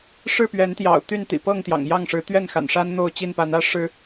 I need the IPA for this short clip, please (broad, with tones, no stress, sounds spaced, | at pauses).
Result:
ʂ ɻ̩˥˨ p ɥ ɛ˨˦ n t̪ j ɑ̰˨˩ ʊ̯ t̪ y˥˨ n t̪ ḭ˨˩ p ɤ˥˨ ŋ t̪ j ɑ̰˨˩ ŋ j ɑ˥˨ ŋ ʂ ɻ̩˨˦ t̪ ɥ ɛ˥˨ n x a̰˨˩ n ʂ a˦ n n̪ o˥˨ ʊ̯ t͡ɕ i˥˨ n p a˨˦ n ä˦ ʂ ɻ̩˨˦